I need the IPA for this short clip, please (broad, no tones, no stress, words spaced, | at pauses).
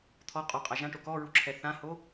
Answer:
t̪ʰɔ qʼɔqʼa ʒãʈo kɔɹuǁʰɛ θãho